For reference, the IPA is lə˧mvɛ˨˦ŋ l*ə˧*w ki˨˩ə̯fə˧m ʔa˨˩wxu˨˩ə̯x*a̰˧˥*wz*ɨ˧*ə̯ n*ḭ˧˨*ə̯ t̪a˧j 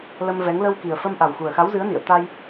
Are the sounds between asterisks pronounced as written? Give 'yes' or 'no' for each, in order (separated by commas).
yes, no, no, yes